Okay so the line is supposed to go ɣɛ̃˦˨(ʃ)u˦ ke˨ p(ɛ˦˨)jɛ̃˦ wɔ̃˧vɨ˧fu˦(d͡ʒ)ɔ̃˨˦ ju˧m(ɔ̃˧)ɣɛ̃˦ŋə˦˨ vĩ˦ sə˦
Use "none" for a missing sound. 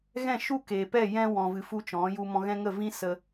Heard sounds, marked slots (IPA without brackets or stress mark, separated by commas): ʃ, ɛ˦˨, t͡ʃ, ɔ̃˧